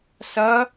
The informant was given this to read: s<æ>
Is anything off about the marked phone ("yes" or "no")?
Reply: yes